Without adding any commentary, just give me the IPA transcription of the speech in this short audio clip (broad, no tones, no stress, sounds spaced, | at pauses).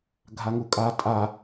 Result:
ɡʱ a ŋ u kʼ a tʼ a